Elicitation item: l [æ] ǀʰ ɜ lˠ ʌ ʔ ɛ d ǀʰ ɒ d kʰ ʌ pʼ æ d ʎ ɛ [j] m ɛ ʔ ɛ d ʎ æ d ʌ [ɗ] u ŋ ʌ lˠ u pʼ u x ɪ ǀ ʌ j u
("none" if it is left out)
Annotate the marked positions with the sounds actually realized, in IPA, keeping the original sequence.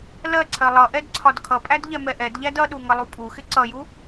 ɜ, none, ɗ

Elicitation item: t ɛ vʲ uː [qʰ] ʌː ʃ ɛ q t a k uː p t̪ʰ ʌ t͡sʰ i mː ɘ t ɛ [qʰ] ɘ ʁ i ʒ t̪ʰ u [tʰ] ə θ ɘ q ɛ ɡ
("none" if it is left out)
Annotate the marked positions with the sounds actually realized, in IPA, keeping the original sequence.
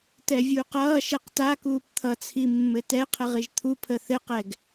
q, qʰ, pʰ

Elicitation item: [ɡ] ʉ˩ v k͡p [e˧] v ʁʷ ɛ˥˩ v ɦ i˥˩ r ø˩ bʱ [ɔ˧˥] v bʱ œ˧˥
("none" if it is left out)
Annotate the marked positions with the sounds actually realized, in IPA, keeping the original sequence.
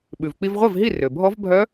ɓ, i˧, ɔ˧˥

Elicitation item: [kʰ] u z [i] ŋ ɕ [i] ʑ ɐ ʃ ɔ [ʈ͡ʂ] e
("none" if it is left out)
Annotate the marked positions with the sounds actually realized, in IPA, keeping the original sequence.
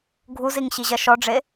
ɡʱ, i, i, ɖ͡ʐ

